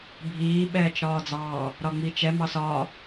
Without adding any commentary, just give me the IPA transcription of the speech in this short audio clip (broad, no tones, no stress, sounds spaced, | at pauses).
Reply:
bʱ iː ɓ ɛː t͡ʃ ɾ ɒː d͡z ɑː | ɾ ɒ ŋ͡m i t͡ʃ ɛ m ɑ s ɒː